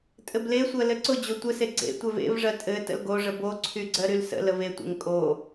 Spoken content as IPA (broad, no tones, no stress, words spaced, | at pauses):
tʼɘblesʷɜ lɘǀʊd͡ʑo tʷɘse ɡ͡ǀḛ tʷɛvḛvʐɜ tʼɘ tə̰lɡoʐə boǀʰy ɡ͡ǀɜɾylsə̰ləv etʷḛŋ kʼo